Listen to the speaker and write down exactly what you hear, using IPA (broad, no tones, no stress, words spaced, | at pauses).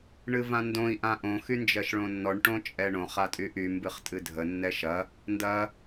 ɳɨvãndõi̯ ʔãʔõ xynd͡ʒɜʃɭõnːɔɳ ʈõt͡ʃʼɛɳõ χatʼyʔy mbɨχtʼɨdʱə nːɛʃɐ | ndɐ